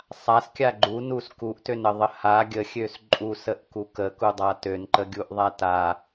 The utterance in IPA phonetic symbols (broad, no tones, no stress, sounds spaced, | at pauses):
sˤ a s kʲ a ɡ͡ǃ u n u s k u ʔ t ø n ə ðˤ ə h a ɡʲ ə xʲ ø s ǃʼ u s ə ʔ k u k ə k u dˤ a t ø n ǃ ə ɡʲ u ʔ ðˤ a t a